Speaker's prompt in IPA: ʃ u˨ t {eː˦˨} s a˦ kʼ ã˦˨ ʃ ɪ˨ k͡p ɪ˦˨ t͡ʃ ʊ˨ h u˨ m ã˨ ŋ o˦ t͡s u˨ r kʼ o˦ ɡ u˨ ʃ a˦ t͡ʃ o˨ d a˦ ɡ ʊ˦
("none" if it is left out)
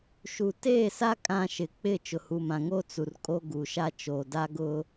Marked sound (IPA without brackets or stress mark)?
eː˦˨